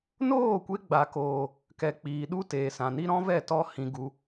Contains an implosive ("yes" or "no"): yes